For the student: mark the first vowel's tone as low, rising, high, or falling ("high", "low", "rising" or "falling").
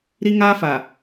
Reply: high